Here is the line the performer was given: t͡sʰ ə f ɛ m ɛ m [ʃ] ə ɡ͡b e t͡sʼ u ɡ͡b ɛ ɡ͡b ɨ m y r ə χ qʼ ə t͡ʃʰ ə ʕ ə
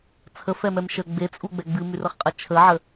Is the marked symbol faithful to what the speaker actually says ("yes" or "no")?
yes